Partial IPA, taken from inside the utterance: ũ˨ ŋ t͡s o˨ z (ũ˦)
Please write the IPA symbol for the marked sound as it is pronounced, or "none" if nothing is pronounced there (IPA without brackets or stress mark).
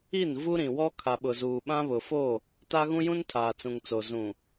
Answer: ũ˨